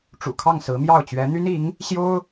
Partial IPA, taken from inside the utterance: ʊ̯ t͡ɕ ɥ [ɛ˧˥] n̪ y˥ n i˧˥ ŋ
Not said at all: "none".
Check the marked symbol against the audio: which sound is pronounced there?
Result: ɛ˧˥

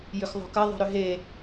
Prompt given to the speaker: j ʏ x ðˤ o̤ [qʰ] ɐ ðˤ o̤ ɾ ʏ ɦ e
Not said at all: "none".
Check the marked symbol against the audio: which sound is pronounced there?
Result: k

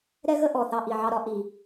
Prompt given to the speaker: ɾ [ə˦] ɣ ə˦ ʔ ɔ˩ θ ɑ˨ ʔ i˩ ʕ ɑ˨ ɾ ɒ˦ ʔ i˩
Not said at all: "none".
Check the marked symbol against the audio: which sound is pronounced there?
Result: ɛ˦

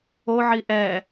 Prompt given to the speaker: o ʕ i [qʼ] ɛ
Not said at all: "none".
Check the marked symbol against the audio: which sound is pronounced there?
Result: ʔ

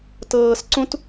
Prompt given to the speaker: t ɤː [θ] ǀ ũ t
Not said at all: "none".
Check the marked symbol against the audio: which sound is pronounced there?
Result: s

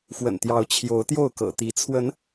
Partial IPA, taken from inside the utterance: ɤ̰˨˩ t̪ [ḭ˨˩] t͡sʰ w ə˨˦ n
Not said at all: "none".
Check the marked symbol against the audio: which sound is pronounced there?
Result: i˨˦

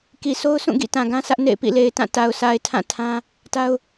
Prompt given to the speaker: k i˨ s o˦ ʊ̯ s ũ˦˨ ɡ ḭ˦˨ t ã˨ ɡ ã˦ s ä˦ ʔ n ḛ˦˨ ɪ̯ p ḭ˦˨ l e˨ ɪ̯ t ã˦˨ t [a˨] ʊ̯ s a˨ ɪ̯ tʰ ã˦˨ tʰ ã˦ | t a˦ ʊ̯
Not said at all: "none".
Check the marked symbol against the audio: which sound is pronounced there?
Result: a˨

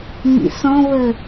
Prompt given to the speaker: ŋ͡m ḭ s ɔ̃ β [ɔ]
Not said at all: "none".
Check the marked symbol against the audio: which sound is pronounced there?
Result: ə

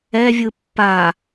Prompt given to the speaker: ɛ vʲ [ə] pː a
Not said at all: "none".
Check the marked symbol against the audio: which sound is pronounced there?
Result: ɯ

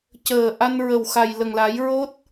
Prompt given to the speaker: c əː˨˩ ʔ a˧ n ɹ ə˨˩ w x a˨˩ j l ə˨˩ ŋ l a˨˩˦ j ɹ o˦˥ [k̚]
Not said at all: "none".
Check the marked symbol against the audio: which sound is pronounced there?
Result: t̚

